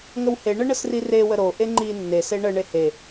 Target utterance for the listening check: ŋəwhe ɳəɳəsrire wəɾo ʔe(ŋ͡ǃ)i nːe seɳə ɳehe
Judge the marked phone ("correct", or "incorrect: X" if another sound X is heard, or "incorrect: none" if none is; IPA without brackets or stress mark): correct